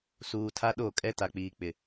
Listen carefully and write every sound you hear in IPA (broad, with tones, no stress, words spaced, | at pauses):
suː˨tʰa˦ɗo˦˨kʼɛ˦ ta˨k͡piː˨k͡pɪ˨